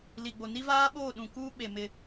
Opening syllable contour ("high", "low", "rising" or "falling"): low